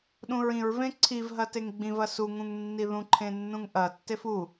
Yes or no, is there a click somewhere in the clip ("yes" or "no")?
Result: yes